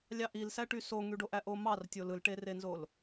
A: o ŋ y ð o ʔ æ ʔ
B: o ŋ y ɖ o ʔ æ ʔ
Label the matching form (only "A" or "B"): B